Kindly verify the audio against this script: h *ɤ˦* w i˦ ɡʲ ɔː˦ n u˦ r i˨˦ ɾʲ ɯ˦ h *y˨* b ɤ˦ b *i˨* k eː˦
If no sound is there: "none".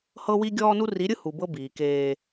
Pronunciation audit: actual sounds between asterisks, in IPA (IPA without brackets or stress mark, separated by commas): ɤ˦, u˨, iː˨